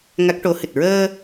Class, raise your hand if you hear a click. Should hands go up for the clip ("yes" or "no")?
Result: no